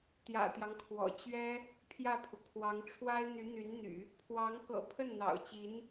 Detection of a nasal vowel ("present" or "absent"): absent